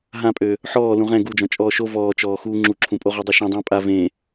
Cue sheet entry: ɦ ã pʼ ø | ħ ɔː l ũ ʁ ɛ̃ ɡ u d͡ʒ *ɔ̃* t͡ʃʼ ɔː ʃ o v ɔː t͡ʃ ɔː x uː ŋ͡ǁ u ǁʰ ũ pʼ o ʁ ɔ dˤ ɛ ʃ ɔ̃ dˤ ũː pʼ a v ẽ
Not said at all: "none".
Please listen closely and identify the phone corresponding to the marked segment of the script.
ɔ̃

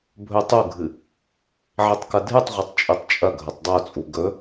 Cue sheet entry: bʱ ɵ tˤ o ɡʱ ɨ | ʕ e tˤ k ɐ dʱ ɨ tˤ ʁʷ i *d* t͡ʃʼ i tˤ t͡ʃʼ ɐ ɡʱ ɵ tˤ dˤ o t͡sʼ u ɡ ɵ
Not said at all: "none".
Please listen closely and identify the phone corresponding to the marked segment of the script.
tˤ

